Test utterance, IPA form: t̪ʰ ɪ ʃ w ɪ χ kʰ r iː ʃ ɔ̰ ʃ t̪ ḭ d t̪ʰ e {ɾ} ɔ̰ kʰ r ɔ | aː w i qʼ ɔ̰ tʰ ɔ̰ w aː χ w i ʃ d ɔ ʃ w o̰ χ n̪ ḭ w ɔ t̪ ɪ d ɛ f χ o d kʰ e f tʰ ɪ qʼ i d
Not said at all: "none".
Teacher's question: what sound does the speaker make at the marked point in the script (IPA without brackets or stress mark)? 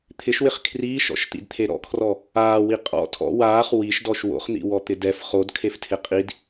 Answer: ɾ